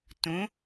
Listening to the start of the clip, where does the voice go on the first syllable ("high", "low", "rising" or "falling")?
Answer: rising